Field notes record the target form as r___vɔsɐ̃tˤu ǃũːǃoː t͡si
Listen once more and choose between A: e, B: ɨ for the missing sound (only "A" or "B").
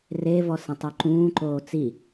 A